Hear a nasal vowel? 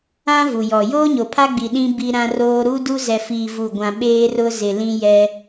yes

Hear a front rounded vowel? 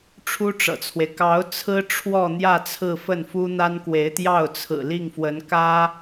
no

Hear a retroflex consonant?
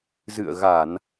no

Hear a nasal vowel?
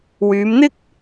no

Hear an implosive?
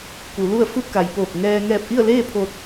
no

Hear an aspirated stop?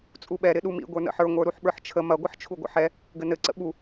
yes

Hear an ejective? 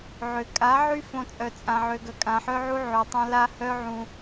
yes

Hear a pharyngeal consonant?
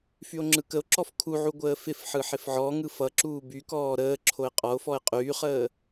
yes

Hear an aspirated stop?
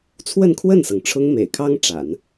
yes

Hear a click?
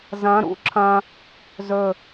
yes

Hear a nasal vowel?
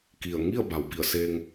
no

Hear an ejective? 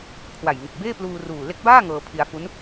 no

